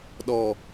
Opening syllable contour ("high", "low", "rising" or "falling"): low